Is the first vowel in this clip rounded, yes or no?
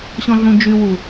yes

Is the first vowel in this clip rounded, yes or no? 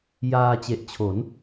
no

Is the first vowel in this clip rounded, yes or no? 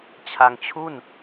no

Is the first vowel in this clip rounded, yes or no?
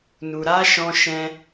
yes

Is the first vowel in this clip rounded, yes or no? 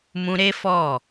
yes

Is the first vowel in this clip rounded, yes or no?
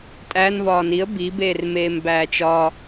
no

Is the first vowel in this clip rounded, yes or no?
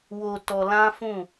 yes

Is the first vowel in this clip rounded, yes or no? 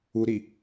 yes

